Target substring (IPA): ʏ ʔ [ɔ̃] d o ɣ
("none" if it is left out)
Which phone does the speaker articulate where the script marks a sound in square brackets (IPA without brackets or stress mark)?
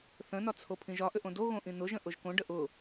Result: õ